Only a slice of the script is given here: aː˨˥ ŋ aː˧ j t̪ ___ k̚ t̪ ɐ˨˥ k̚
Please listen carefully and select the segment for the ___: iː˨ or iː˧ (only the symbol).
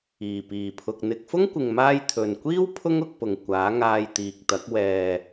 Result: iː˨